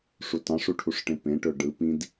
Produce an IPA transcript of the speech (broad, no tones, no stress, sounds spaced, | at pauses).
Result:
ʂ u t ɑ̃ ʂ u ʈʰ u ʂ ʈ ẽ p ẽ ʈ ø ɖ ɯ p ĩ d